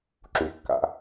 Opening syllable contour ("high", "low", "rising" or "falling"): low